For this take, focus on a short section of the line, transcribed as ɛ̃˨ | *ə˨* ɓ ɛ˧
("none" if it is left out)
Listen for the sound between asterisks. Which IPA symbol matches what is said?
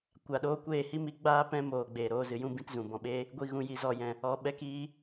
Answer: ɔ˨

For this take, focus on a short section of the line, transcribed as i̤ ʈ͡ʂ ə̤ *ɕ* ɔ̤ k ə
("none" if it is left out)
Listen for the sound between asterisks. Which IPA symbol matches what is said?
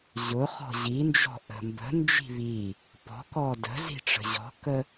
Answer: ʑ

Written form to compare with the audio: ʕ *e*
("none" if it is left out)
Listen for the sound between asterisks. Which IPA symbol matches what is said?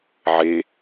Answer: e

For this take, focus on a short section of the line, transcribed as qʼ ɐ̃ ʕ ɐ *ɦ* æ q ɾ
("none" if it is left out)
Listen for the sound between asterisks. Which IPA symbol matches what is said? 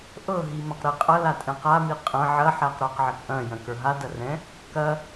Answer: ħ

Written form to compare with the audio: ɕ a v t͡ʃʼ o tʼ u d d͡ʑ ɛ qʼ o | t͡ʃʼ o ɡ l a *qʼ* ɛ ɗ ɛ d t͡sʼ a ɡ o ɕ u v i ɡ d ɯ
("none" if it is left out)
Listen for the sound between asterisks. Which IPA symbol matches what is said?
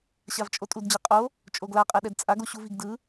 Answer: qʼ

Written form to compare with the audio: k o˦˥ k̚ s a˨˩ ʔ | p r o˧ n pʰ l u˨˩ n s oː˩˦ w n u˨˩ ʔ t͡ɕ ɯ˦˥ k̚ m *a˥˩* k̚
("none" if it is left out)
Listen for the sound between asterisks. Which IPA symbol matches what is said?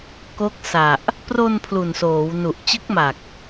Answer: a˨˩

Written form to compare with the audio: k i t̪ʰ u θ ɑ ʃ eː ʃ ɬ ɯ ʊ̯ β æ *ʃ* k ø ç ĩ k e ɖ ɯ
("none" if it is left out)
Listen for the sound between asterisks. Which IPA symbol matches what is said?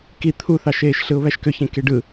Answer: ʃ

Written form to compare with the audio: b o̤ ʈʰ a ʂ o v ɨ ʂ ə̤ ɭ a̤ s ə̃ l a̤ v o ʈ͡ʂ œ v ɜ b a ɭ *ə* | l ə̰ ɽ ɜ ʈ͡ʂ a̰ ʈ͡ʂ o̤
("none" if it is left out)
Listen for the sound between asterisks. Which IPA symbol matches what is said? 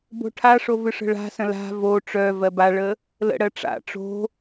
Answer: ə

